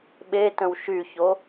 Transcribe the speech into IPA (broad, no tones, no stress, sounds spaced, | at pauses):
ɓ e t ə̃ w ʃ y ç o